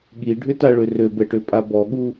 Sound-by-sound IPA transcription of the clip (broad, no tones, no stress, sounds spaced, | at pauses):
ɠ i ɖʱ ʏ t a ɭ ʏ r ø b ɛ ʈ ø pʼ a b ɔ ɠ u